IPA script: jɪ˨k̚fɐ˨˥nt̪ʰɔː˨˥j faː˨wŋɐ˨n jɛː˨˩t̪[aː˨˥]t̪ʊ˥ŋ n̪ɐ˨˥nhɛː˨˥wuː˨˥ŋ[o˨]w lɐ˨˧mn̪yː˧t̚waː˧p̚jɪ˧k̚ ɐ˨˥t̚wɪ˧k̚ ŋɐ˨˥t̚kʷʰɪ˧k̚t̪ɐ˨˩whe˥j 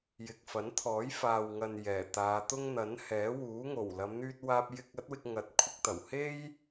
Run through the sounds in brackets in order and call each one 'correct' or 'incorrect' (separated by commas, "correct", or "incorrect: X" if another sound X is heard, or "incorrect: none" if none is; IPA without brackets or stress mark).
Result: incorrect: aː˨˧, incorrect: o˨˩